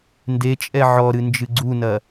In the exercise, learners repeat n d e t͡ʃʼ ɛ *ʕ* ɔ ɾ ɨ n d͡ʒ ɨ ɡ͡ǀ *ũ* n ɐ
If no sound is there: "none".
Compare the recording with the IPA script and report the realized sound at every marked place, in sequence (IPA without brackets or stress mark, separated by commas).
ʕ, u